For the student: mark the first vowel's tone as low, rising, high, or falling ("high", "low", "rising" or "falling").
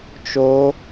high